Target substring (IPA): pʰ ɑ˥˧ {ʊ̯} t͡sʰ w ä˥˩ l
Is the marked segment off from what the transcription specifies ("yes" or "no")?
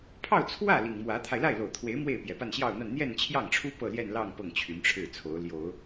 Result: no